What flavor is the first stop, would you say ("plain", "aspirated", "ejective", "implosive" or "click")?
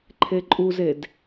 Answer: click